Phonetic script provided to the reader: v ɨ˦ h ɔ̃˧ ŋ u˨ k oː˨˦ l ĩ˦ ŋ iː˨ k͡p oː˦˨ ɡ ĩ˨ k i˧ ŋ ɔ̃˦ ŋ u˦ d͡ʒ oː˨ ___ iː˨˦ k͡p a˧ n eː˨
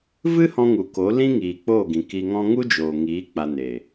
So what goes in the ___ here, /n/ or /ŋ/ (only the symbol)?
ŋ